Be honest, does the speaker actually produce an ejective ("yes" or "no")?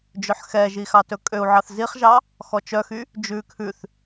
yes